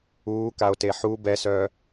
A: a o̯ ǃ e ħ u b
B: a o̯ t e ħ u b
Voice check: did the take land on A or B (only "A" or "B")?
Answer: B